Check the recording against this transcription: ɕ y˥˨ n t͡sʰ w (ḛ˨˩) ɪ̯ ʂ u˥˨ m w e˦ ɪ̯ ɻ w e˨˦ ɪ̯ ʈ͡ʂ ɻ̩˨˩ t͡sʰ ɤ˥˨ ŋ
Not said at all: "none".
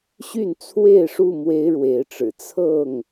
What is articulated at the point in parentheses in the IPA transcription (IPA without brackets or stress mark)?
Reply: e˥˨